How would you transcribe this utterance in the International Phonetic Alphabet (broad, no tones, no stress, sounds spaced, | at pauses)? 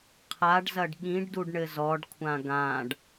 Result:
qʰ a ɖ z ɐ ɖ ɠ ĩ ɖ d u ɖ ɳ ɘ z ɔ ɖ kʷʰ ã ɡ ã ɖ